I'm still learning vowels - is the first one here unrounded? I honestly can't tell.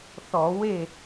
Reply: no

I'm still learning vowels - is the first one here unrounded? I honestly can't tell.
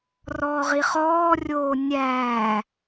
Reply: no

